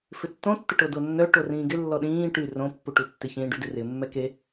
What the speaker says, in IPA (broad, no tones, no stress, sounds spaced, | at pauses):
f ɪ tː õ tː ɪ ʈ o d o nː œ ʈ o r ĩː ɡ ɪ lː ɔ ɗ ĩː ʈ y r õ pː u ʈ u tː ɪ ç ĩː ɖ y d ɪ r ɪ mː ɛ k e